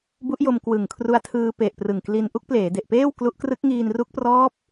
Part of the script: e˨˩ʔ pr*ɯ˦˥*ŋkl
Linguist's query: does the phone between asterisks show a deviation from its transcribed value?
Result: yes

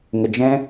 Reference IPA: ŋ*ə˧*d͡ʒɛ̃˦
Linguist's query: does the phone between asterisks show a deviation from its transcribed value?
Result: no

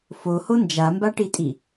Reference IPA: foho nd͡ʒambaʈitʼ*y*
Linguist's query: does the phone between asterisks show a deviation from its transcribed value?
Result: yes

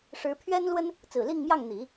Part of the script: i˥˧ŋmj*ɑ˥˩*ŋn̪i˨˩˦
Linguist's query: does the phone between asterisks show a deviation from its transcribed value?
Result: no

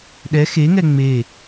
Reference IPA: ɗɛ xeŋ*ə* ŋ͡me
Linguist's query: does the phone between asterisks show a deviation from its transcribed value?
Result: yes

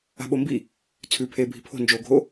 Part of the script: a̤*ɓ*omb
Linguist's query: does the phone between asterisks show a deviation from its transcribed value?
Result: no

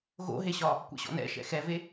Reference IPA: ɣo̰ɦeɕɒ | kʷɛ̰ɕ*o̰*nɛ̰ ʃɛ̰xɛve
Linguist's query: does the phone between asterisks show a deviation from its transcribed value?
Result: yes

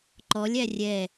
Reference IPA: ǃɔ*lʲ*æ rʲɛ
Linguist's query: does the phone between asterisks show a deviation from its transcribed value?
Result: no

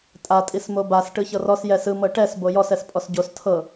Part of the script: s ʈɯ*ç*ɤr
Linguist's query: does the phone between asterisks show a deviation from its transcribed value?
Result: no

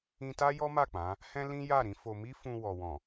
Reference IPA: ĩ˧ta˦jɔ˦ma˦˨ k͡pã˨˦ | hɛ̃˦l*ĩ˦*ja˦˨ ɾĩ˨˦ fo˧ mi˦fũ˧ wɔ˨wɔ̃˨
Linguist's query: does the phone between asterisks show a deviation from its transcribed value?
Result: no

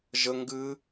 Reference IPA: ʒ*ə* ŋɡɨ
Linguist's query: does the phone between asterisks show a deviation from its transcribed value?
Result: no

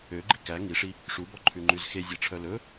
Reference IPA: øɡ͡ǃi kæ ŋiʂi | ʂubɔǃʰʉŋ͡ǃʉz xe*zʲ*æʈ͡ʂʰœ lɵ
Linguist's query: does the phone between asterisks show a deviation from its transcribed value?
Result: no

